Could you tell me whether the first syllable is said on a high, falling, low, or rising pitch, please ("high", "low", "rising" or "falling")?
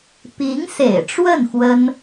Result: rising